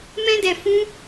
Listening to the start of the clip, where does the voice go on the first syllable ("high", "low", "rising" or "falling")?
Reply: high